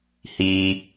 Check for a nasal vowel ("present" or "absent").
absent